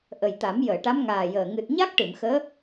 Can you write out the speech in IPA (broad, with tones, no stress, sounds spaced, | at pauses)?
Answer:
ʔ ə˨˩ j t̪ a˨˩˦ m j əː˨˩˨ ʈ a˧˥ m ŋ aː˨˩ j əː˨˩ ŋ ɨ˨˩ t̚ ɲ a˦˥ k̚ ʈ ɨ˨˩˨ m x əː˧˥